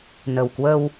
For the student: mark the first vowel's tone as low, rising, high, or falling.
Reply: low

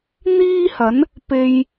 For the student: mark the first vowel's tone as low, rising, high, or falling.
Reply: high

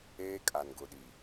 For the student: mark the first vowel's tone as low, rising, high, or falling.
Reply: high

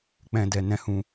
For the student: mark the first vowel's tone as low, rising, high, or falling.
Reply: low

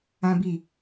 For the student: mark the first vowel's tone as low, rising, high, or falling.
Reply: high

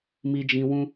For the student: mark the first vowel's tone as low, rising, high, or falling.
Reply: high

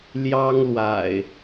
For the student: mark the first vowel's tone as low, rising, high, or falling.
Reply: high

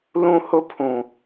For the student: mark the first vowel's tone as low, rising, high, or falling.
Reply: high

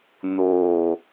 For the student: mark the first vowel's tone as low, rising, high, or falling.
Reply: low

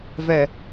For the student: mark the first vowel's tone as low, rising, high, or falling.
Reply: low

